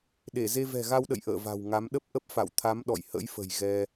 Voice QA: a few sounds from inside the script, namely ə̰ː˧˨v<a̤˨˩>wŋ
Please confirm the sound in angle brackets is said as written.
yes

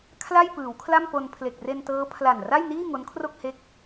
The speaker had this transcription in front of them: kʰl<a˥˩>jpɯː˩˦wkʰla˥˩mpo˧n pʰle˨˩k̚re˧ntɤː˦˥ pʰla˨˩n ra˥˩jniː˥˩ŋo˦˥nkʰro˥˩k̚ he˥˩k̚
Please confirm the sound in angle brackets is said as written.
yes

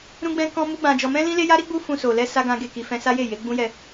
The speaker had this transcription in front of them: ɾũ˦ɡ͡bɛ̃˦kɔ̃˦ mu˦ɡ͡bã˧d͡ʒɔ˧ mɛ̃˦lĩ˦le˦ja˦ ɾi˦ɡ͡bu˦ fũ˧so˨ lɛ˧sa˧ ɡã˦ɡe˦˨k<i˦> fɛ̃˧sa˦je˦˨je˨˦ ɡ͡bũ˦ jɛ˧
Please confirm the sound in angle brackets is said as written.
no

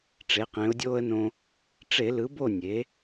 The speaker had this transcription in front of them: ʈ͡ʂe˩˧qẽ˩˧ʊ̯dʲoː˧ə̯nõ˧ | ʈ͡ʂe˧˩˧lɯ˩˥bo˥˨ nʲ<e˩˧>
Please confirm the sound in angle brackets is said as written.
yes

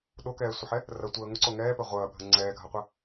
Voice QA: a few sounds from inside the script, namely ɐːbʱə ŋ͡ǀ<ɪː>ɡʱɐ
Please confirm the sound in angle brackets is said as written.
no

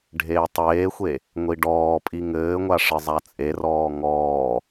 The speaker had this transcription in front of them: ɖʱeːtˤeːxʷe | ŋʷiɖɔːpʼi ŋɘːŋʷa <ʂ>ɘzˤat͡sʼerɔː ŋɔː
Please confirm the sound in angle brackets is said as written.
yes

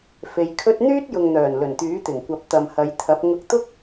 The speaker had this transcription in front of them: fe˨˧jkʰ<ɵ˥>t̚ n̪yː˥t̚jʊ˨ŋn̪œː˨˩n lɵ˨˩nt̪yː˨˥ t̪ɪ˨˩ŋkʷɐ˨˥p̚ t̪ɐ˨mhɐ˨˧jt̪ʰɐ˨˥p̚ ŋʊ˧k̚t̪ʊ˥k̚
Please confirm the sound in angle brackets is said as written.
yes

